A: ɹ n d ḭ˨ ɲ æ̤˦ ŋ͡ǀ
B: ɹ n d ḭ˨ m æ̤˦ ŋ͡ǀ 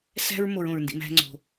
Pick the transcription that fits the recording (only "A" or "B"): B